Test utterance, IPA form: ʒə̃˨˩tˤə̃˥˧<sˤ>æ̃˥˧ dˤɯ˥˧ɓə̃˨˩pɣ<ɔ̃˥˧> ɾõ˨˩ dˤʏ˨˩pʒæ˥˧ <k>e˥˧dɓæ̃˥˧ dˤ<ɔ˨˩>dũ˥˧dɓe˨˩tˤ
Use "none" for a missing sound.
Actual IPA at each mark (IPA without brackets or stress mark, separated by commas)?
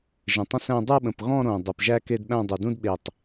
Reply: s, ɔ̃˥˧, k, ɵ˨˩